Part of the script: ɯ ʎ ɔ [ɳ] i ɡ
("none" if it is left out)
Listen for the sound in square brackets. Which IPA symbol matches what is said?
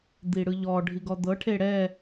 ɖʱ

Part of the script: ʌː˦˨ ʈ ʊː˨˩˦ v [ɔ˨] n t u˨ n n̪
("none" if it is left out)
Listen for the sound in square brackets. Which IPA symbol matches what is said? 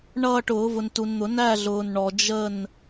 ʊ˨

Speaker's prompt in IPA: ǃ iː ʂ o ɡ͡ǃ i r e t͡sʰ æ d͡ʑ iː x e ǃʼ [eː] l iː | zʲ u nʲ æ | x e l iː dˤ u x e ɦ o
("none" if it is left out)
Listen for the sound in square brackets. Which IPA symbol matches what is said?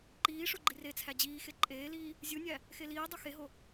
eː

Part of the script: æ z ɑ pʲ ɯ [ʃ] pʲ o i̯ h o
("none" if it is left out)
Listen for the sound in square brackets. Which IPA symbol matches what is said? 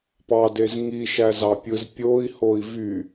z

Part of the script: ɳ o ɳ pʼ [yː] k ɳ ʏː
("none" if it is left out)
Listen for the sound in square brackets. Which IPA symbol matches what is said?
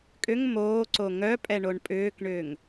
ʏː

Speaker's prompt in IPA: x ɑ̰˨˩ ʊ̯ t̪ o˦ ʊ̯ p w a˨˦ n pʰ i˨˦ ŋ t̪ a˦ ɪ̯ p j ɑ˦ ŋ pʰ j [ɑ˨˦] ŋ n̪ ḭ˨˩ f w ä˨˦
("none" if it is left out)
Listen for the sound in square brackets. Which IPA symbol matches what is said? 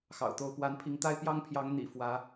ɑ˨˦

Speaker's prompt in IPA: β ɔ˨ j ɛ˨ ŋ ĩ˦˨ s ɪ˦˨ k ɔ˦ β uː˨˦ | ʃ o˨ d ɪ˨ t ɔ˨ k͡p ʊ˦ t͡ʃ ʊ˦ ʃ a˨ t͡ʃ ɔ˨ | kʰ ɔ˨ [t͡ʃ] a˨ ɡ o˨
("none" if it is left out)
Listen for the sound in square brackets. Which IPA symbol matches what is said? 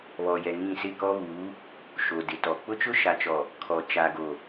t͡ʃ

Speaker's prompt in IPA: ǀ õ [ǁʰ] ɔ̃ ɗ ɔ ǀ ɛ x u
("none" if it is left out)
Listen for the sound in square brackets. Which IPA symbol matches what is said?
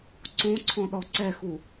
ǀʰ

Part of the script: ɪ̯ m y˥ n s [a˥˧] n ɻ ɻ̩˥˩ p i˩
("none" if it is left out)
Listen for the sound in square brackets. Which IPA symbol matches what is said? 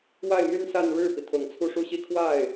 a˥˧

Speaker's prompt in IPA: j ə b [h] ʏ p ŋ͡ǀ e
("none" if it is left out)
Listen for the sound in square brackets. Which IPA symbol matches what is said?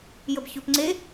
ç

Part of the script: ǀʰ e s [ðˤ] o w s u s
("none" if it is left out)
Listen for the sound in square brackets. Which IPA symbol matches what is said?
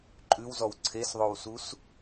ðˤ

